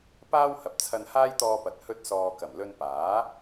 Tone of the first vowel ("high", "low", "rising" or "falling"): high